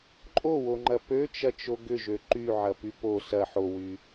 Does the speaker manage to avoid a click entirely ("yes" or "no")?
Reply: no